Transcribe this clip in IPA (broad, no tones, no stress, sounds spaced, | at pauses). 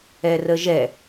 ɛ r ə ʒ ɛ